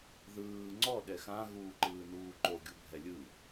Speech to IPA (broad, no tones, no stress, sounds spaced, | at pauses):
ð ɯː ŋ͡ǀ ɔ ɗ ɛ x ã ɣ uː ǃ ɯː n uː ǃ o ɡʲ u bʱ ɛ lʲ ɯ